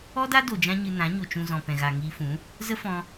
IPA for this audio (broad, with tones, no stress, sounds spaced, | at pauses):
ɔ˦ d a˦ d o˨ d͡ʒ ã˦ ɲ ɨ˧ n ã˨˦ ɲ o˨ t͡ʃ ũ˨ z ɔ̃˨ p ɛ̃˨ ɣ a˨ ŋ iː˧ f ũ˨˦ | z ə˦ f ɔ̃˧